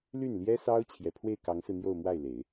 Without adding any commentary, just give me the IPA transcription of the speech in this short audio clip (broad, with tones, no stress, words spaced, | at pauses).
ly˥˩nljɛ˥sɑ˥ʊ̯ t͡ɕʰjɛ˨˩pʰwe˥˩ɪ̯kɑ˧˥ŋsɹ̩˧ n̪jo˥˧ʊ̯mwa˥˩ɪ̯le˨˩˦ɪ̯